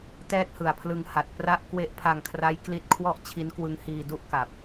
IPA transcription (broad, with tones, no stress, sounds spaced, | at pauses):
t ɛː˥˩ t̚ h ɯ˨˩ a̯ pʰ l ɯ˧ ŋ h a˨˩ t̚ p r a˥˩ ʔ k w e˥˩ ʔ pʰ a˧ ŋ kʰ r a˦˥ j k l i˦˥ t̚ kʰ w ɔ˥˩ ʔ t͡ɕʰ i˦˥ n k w ɯ˦˥ ŋ h iː˧ d u˥˩ ʔ k a˨˩ p̚